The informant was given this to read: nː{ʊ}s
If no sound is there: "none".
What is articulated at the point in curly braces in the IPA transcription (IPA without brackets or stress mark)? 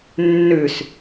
ʉ